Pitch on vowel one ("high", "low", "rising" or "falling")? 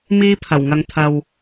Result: high